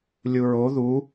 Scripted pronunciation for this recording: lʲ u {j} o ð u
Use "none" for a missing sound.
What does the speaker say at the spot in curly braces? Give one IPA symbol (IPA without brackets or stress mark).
ɹ